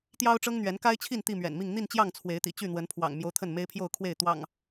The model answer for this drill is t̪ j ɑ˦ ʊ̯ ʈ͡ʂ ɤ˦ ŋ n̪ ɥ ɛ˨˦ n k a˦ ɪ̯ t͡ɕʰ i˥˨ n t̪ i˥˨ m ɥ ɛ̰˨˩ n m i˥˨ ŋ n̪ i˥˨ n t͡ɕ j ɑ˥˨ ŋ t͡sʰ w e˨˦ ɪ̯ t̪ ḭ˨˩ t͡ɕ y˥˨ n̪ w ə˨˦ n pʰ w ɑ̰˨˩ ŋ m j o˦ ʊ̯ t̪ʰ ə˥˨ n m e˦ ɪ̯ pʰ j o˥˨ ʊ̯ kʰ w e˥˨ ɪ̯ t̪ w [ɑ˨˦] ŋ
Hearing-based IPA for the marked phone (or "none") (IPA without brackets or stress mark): ɑ̰˨˩